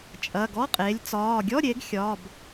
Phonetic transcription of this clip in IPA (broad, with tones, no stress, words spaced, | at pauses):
t͡ʃʼɐ˧˥˧ ɡɔ˧˥˧qʼe˨˦lʲ t͡sɒː˧˥˧ ɡʲɔ˧˥˧ɾʲe˨˦ɡ xʲɒː˧˥˧b